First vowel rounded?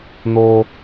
yes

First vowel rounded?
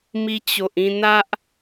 no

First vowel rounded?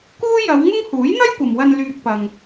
yes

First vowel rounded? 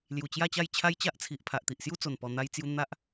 yes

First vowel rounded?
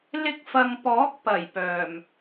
no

